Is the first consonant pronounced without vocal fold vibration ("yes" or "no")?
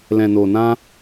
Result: no